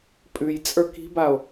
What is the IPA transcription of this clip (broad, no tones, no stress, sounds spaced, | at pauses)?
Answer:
pʼ ʉ j t͡sʼ ə˞ k i̤ b a o̯